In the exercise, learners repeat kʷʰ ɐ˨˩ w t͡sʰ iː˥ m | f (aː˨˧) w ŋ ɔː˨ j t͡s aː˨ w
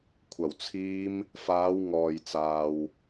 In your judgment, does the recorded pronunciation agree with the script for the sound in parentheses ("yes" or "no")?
yes